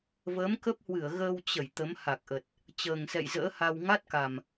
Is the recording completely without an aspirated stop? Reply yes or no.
yes